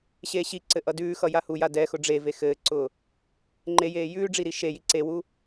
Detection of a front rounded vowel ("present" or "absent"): absent